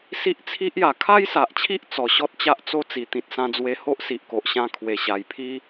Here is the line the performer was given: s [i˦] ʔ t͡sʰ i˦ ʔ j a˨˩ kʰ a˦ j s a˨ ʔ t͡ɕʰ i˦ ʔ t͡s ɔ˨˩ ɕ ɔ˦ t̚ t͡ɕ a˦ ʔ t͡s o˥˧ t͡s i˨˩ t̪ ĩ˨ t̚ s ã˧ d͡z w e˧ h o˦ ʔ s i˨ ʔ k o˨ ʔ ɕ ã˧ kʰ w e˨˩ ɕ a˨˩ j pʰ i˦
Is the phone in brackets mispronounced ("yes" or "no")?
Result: no